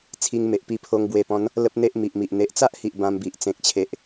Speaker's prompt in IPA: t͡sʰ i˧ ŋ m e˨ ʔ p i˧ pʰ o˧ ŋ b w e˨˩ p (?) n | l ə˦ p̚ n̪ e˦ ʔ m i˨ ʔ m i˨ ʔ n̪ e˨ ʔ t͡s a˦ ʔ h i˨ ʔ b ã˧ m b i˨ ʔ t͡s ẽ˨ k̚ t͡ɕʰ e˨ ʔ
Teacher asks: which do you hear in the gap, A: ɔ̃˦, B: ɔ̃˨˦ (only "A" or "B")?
B